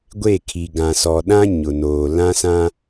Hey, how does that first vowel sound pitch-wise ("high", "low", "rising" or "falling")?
falling